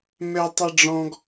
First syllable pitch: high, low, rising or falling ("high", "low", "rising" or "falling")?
high